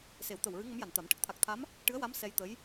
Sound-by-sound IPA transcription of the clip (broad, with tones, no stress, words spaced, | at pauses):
se˨˩˦wt̪ə˨˩wɹɨ˧˥ ŋə˧˥mja˨˩nt̪a˨˩˦m ʈə˦˥k̚t̪ʰa˨˩k̚t̪ʰa˧˥m | ʈɨ˧˥ə̯wa˧˥m sɛ˧jt̪ə˧˥j